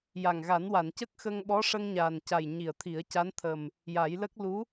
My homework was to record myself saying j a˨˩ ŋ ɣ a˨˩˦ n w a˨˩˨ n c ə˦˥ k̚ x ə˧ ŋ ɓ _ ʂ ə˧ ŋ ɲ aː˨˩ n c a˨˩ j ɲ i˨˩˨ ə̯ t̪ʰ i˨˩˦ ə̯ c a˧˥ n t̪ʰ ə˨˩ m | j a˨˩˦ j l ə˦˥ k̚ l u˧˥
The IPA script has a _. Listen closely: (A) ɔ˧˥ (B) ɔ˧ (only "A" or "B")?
A